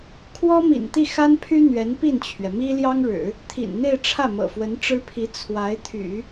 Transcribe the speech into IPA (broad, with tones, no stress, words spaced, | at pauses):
kʰwɔ˥mḭ˨˩nt̪i˥˩ xa˥npʰy˥ n̪ɥɛ˧˥npi˥˩nt͡ɕʰɥɛ˩mi˥ ljɑ˥ŋɻɻ̩˨˩˦ | t̪ʰḭ˨˩nn̪e˥˧ɪ̯ ʈ͡ʂʰä˥˩mɤ̰˨˩fwə˧˥n ʈ͡ʂɻ̩˥pʰi˧˥ t͡sʰwa˧˥ɪ̯t̪ʰy̰˨˩˦